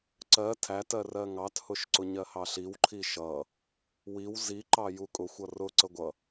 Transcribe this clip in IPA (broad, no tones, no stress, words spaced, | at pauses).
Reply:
ǀɜ tʰætɜ rɜŋɑthʊʃ ǀʊɲɜhɑɬiw ǃʰiʃʌ | wiw ziǃɑju kʼʊxʷʌ rʊ ǀəɡʷʌ